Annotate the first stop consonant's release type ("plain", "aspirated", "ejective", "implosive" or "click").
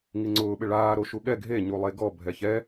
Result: click